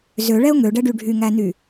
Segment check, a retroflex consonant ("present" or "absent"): present